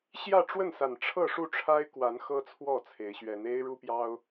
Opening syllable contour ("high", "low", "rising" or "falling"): falling